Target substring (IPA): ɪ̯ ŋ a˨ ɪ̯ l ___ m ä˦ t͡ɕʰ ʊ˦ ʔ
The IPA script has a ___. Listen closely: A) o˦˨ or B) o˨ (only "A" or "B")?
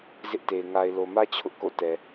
B